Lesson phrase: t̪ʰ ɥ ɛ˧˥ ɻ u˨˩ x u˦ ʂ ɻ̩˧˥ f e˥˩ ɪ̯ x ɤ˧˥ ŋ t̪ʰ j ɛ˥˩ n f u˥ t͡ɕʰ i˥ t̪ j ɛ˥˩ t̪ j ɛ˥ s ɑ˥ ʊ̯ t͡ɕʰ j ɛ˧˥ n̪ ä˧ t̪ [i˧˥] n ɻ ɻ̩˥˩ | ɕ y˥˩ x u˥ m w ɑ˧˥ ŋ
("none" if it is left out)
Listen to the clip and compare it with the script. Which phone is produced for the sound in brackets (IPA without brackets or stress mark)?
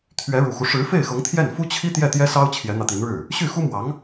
i˧˥